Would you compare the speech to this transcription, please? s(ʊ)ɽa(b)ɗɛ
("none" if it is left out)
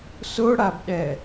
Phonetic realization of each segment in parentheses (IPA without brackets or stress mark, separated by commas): ʊ, b